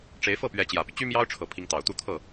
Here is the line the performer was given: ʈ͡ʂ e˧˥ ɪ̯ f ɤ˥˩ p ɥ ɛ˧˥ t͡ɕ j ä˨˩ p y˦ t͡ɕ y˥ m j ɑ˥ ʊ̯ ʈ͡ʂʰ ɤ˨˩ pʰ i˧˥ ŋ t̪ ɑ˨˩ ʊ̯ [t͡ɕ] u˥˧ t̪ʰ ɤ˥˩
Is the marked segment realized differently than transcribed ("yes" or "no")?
yes